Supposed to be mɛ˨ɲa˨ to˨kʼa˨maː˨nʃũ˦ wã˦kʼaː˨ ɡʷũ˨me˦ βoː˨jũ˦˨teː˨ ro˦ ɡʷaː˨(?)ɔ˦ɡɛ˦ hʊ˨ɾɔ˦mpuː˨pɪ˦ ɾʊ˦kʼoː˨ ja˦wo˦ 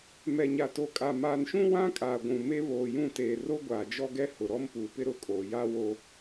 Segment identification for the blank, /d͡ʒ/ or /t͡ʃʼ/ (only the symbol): d͡ʒ